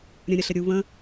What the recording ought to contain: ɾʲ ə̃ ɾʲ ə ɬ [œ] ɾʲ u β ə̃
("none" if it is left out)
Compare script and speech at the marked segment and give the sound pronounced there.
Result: ə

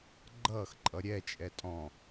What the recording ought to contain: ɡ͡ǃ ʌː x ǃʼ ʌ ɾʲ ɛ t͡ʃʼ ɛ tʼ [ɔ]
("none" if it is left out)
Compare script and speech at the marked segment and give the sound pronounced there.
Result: ɔ̃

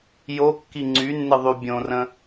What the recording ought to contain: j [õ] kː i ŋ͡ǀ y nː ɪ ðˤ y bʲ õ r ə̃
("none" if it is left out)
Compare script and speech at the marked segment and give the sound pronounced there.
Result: o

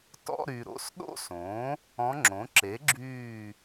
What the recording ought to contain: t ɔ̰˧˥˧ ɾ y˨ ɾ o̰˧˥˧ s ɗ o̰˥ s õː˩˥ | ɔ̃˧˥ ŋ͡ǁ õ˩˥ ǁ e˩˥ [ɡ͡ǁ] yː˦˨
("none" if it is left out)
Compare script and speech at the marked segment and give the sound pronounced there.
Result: ɡ͡ǁ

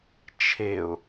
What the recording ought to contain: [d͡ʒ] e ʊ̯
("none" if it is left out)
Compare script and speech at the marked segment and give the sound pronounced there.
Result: t͡ʃʰ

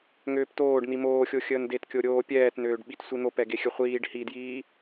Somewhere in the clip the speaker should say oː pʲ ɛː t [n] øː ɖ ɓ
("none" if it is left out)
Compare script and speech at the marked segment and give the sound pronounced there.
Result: n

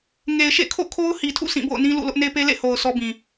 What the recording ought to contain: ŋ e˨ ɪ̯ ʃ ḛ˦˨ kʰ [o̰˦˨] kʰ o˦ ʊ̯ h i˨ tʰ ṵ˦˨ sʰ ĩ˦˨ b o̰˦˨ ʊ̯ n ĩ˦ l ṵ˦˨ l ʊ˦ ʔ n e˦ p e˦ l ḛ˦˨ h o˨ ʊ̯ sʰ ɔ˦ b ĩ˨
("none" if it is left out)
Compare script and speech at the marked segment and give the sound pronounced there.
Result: o̰˦˨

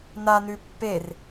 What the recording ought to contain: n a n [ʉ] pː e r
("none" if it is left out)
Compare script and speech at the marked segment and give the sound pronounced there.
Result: ʉ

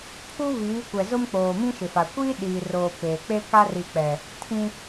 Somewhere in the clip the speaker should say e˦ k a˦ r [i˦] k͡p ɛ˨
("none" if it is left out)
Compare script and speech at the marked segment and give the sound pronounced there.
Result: i˨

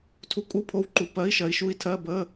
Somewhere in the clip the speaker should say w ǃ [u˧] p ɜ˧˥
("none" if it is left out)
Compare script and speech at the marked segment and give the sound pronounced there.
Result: u˧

